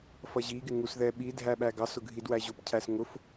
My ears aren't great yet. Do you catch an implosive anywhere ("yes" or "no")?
yes